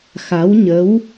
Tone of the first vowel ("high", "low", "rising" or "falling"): rising